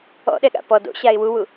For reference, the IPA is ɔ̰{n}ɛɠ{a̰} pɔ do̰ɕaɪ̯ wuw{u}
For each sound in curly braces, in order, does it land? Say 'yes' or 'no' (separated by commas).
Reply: no, yes, yes